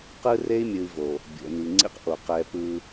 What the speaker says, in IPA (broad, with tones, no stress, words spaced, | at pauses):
qɯ˦re˦i̯mʲɯ˨i̯ vo˨ | bʲo̰˨ni˨ŋ͡ǀḭ˦qʔo˨ qɛ˨ pɯ˦